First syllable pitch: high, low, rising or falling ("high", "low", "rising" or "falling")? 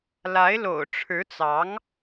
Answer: rising